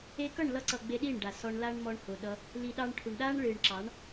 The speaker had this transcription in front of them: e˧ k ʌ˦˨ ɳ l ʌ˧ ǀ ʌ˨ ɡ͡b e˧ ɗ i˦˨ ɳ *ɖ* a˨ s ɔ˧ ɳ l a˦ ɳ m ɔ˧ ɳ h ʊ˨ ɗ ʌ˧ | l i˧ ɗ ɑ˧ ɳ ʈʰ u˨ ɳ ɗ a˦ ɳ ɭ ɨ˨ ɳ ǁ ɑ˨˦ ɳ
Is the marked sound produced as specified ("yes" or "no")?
yes